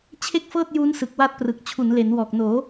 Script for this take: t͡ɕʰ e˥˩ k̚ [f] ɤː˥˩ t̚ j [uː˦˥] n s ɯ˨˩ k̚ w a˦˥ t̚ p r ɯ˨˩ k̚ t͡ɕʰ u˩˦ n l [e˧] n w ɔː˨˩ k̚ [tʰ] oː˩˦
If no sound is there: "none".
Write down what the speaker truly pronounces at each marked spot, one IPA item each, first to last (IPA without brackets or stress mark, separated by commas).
f, uː˦˥, e˩˦, n